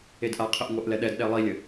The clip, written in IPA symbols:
e d ʔ a qʰ ɘ ʔ ŋʷ ɛ ʔ l ɛ ɗ ɛ d ɗ ɛ lˠ i lʲ ɘ

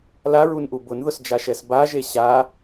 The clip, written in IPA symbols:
l a ɹ u n ʔ u b ʊ n ð ʊ s d͡ʒ a ʃ ɛ s b a ʒ e ɕ a

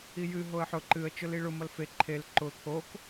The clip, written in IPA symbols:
i j ɨ ɦ o ə̯ ħ ʊ ǃ ɨ ə̯ t͡ʃ ʊ l i ɭ ʊ m ʌ l f e ǃʰ e l ǃ ʊ t̪ʰ o k

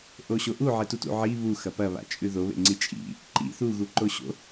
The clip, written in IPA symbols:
ʔ o ɕ o ʔ u ʕ e t u t ṵ ʕ i β u x ɐ p ɐ β a̰ t͡ʃʼ ʉ ð o β ḛ ŋ͡ǀ i t͡ʃʼ ḭ | ǃ ḭ θ u ɣ u ǃ o ɕ o̰

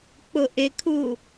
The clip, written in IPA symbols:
k͡p ʊ ʔ ɪ kʰ u

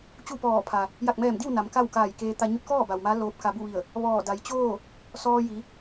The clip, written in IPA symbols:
t͡ɕ u˥˨ p ɔː˧˩ pʰ a˩ | j a˧˩ k̚ m ɛː˧˩ m d i˥˨ w n a˩˧ m k a˥˨ w k aː˧˩ j k eː˧ t̪ a˧ ɲ u˧˥ t̚ k ɔː˥˨ b a˩ w m a˧˥ l oː˧ p̚ k a˧ b u˥˨ ʋ i˧˩ ə̯ | ʋ ɔː˧˩ d a˩˧ j t͡ɕ oː˥˨ | s ɔː˧ j i˩˧

